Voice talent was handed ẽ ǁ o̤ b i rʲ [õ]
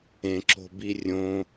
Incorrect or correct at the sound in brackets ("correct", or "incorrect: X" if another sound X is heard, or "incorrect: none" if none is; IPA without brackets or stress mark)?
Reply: correct